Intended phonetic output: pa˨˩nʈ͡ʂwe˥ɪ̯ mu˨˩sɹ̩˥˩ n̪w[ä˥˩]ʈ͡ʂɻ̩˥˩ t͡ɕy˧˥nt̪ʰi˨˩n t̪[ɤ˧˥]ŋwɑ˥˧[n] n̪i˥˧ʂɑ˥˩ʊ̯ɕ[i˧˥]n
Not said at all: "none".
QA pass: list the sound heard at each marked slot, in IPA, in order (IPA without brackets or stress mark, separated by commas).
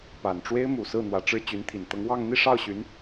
ä˧˥, ɤ˧˥, ŋ, y˧˥